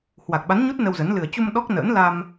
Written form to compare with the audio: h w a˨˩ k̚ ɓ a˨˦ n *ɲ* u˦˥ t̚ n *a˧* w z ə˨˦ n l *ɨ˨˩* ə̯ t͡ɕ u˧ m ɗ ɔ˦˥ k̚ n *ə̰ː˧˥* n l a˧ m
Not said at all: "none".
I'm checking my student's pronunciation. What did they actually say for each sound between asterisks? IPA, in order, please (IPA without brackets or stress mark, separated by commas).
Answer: ɲ, ə˧, ɨ˨˩, ə̰ː˧˥